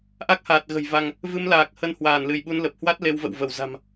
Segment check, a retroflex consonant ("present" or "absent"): absent